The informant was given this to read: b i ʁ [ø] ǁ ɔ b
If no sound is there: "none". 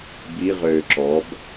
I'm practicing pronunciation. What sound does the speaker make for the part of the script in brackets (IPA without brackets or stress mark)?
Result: ø